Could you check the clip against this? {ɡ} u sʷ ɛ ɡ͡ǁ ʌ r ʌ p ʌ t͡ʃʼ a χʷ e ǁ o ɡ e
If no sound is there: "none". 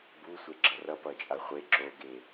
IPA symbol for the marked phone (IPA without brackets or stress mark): b